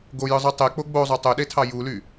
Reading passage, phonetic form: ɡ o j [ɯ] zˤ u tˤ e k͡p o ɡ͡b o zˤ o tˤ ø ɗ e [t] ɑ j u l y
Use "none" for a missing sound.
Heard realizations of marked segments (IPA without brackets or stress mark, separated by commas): ɯ, tʰ